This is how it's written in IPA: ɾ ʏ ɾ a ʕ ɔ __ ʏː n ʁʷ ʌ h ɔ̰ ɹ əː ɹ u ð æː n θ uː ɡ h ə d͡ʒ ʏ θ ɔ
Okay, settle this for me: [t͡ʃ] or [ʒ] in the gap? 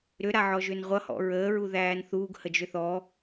ʒ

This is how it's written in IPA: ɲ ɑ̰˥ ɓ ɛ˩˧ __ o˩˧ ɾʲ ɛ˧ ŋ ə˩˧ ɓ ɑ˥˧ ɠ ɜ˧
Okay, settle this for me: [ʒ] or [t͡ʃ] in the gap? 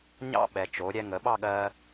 t͡ʃ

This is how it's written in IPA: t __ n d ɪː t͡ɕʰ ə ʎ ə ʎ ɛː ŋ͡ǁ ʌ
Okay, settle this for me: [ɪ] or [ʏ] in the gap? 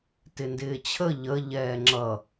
ɪ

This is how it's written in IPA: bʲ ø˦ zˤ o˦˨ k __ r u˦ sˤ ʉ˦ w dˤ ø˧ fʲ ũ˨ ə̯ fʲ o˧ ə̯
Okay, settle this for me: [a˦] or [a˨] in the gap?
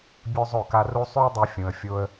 a˦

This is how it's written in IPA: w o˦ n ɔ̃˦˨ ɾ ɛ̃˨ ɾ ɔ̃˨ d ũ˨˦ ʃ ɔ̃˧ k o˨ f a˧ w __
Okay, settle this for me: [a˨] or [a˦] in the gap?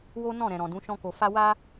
a˦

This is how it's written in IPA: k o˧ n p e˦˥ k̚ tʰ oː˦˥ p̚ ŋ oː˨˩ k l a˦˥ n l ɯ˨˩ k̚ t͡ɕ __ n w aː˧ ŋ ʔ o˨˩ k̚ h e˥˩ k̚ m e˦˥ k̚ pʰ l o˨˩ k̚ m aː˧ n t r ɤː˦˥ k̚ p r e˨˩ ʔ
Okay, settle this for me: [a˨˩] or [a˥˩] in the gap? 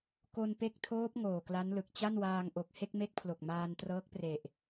a˥˩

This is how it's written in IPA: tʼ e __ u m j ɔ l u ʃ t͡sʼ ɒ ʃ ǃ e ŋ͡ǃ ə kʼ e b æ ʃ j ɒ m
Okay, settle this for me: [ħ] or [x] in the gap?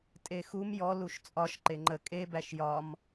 x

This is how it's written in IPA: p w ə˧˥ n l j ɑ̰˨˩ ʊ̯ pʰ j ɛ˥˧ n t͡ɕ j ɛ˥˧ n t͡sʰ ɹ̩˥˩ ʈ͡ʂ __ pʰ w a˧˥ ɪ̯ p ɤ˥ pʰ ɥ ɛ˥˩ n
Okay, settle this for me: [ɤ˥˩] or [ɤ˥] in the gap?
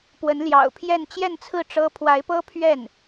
ɤ˥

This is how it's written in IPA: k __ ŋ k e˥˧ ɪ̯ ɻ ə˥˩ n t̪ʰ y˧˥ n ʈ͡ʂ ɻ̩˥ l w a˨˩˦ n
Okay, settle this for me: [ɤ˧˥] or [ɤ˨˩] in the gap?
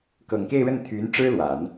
ɤ˨˩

